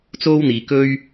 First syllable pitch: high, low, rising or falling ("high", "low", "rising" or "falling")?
high